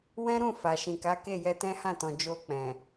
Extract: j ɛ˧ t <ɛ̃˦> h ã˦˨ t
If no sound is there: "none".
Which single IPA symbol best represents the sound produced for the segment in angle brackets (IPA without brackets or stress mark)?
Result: ɛ̃˦